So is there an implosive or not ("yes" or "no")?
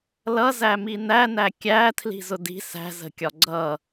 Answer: no